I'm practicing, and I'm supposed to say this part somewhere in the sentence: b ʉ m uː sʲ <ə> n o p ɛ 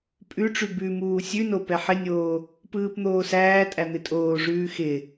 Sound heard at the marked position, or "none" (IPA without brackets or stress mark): ʉ